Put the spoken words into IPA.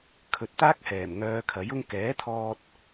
kʰ ɵ˨ t̚ t̪ aː˥ k̚ h ɛː˨˩ m ŋ œː˧ kʰ ɐ˨˥ j ʊ˥ ŋ k ɛː˨˥ t̪ʰ ɔː˧ t̚

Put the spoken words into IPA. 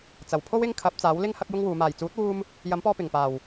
t͡s ɐ˨˩ w pʰ o˥ w ɪ˥ ŋ kʰ ɐ˨˥ p̚ t͡s aː˨˥ w l ɪ˥ ŋ h ɐ˥ k̚ j ʊ˥ ŋ w uː˨˧ m aː˨˩ j t͡s uː˨˥ t̚ w uː˧ m | j ɐ˨˥ m p ɔː˧ p ɪ˨˩ ŋ p aː˨˩ w

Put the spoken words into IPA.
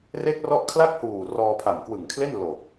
r e˦˥ k̚ r ɔ˦˥ ʔ kʰ l a˥˩ k̚ h uː˨˩ r ɔː˧ pʰ a˨˩ m k w ɯ˨˩ ŋ kʰ l e˥˩ n l o˨˩ k̚

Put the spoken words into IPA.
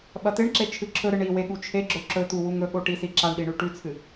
ɓ ɐ t̪ e ɳ ǁ e t͡ʃʰ ɨ ǁʰ ɵ ɾ ɨ ɳ i w e ɠ u t͡ʃʰ e ɡ͡ǁ ɵ ǁ ɵ t̪ u w u ŋ ɵ ɠ o ʈ i s i ǁ a ɳ ɗ i ɳ ʉ ʈ ʉ t͡sʰ ɨ

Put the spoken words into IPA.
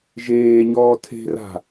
ʒ eː ɲ ɔː tʰ e̤ r a̤

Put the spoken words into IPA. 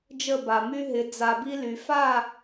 d͡ʒ ə˦˨ b a˨ m y˦ ɦ ɪ˨˦ d͡z a˨ b i˧ l y˨ f a˦˨

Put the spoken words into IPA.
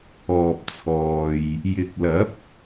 ɔː˨ p̚ t͡sʰ ɔː˨ j | j ɪ˨˥ k̚ l ɐ˨˥ p̚

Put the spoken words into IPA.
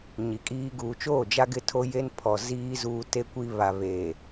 ɲ i˨ kʼ iː˦ ɡ uː˨ t͡ʃ oː˦˨ d͡ʒ a˦ ɡ ɪ˦ tʰ o˦ j e˦ n pʰ ɔ˨ z iː˦ z uː˦ t e˦ kʷ i˦ β a˨ β eː˨

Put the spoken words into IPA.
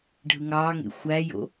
ɖʱ ɯ ŋ ɑː ŋ ḛ xʷ æ j o̰

